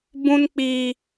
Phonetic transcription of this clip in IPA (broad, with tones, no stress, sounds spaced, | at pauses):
b ũ˧ n k͡p i˨